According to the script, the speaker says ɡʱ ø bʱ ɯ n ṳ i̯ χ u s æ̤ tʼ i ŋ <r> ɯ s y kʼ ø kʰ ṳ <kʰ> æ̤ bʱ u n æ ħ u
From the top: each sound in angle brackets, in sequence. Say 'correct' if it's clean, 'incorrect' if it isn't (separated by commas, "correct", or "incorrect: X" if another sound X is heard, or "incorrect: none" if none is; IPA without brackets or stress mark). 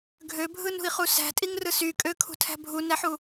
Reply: correct, incorrect: tʰ